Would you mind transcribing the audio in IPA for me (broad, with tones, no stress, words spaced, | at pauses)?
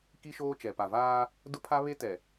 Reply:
ki˦ʃoː˦t͡ʃɛ˨ pa˨vaː˦ | dʊ˦pʰa˦ βe˦tɛ˨